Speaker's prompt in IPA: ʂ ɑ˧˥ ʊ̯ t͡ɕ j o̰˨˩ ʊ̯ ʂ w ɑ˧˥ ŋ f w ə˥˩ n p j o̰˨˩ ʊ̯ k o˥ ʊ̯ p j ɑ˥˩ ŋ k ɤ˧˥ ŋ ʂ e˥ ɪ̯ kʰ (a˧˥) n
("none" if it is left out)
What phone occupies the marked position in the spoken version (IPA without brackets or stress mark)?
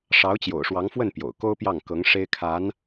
a˧˥